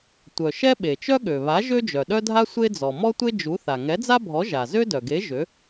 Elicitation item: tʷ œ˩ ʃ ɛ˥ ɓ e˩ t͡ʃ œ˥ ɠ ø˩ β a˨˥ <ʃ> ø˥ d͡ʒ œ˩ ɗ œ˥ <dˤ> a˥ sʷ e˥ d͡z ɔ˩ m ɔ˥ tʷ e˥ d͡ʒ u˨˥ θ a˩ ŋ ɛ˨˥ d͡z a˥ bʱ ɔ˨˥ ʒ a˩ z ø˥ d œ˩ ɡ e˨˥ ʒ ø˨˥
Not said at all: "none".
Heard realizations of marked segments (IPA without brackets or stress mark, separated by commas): ʒ, dʱ